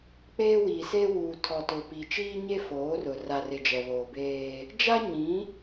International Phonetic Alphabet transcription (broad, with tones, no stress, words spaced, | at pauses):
k͡peː˦wiː˨seː˦ wuː˨tʰɔ˨tʊ˨ piː˨t͡ʃiː˦ ɲe˦foː˨˦rʊ˨ ra˨rɪ˨ d͡ʒɛ˨βoː˨beː˦ | d͡ʒa˦ɲĩ˨˦